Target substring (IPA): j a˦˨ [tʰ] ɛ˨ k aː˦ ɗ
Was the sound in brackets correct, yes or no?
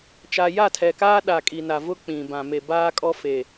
yes